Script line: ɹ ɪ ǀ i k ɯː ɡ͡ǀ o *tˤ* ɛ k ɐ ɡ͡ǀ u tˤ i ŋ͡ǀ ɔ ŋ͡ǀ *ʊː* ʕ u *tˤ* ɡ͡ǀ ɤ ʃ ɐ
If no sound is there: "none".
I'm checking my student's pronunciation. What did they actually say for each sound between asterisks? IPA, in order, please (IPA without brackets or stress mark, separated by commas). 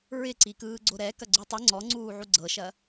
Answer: ɾ, uː, none